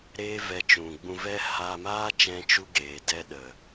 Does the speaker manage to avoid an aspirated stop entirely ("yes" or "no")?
yes